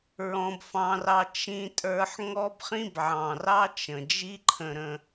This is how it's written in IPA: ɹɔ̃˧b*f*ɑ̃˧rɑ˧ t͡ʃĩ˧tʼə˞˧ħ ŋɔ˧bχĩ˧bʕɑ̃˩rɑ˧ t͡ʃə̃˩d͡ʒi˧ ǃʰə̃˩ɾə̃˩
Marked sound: correct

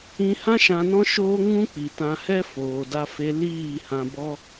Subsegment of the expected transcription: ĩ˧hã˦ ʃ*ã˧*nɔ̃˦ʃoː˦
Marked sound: correct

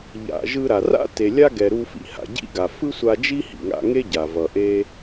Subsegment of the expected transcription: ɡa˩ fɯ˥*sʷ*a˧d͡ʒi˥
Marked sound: correct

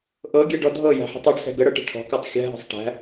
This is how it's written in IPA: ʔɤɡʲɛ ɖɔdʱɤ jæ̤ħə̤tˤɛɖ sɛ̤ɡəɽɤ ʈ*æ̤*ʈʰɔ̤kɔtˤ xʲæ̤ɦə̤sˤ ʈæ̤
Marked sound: incorrect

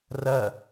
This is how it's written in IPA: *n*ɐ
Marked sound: incorrect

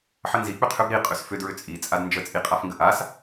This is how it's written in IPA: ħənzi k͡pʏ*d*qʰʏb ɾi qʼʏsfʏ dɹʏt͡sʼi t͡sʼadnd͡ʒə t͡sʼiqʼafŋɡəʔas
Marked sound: incorrect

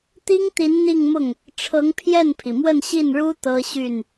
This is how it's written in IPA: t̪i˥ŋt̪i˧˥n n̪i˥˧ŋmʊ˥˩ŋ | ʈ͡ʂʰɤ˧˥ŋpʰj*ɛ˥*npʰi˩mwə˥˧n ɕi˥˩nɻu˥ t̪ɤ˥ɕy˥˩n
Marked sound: incorrect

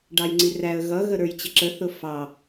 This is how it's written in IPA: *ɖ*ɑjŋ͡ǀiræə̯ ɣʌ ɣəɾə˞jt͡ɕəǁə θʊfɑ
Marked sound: correct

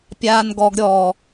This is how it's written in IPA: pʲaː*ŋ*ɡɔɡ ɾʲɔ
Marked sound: incorrect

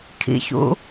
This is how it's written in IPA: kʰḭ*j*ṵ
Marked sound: incorrect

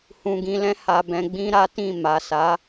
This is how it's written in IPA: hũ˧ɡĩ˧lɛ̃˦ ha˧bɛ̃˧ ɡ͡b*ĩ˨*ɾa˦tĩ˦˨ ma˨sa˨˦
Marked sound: incorrect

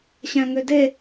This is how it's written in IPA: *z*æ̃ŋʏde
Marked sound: incorrect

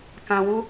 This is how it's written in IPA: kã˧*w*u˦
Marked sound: correct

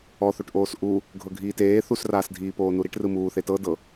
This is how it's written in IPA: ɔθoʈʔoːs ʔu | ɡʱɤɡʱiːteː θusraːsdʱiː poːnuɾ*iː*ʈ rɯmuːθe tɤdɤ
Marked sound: incorrect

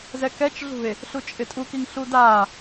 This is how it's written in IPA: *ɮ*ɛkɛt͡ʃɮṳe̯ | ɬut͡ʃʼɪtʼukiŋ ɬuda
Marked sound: incorrect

